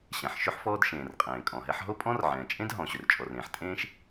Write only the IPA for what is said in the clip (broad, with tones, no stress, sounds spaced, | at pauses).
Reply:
ɕ ɛ̃˩ ħ ʃ ɵ˥ ħ f ɔː˥ d ʃ ẽː˩ r qʼ ẽː˩ kʼ ɔ̃˩ ɦ ɛ˥ ħ ɦ o˥ pʼ ɔ̃˥ r ʕ ɛ̃ː˩ t͡ʃʼ ẽ˥ d ɦ ɔ̃˩ ɕ ɵ˩ r t͡ʃʼ ɔ˩ r ẽː˩ ħ tʼ ẽː˥ ʃ